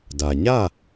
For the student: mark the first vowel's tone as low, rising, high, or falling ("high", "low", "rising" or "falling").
low